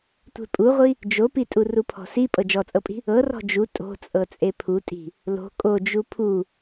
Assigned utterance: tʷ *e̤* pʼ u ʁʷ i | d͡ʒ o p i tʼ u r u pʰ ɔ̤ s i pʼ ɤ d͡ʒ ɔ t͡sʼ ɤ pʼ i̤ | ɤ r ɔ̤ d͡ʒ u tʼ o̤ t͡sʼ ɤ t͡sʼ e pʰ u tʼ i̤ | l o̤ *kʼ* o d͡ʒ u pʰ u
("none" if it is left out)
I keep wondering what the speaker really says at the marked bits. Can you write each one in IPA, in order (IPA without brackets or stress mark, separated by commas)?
e̤, kʼ